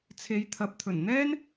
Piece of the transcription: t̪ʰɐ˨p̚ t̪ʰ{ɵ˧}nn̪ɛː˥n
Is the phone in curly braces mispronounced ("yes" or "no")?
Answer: yes